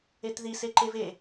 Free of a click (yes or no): no